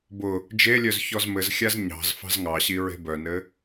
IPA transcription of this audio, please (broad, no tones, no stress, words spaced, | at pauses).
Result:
bʊ | d͡ʒelʲœz çɔzmɘzxʲaz ɲɑ̤z fɑ̤zŋɑɕi ɹe̤bœnɘ